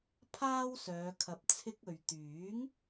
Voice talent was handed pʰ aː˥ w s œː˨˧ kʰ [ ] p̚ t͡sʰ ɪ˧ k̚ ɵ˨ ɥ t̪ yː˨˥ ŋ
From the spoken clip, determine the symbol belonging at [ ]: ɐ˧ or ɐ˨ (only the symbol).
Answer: ɐ˨